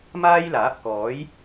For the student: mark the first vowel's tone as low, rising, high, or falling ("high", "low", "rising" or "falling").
high